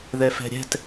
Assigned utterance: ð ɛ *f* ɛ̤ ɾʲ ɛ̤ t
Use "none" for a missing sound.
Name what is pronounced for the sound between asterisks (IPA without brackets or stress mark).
f